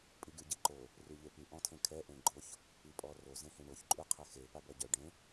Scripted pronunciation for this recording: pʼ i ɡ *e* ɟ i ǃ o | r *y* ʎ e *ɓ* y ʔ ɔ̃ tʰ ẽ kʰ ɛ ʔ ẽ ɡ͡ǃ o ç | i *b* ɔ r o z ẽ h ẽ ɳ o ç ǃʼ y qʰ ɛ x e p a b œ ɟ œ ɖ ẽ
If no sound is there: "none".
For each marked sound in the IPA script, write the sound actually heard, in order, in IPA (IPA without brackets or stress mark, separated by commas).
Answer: y, y, p, pʼ